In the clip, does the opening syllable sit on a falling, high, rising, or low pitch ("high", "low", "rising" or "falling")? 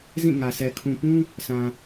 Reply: falling